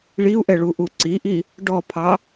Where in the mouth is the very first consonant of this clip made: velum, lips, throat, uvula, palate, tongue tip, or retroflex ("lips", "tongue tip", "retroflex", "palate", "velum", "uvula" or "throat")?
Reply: retroflex